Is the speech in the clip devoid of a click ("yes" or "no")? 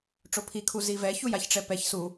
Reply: yes